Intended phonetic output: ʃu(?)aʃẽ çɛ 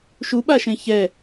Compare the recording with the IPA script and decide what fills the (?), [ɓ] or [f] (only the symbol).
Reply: ɓ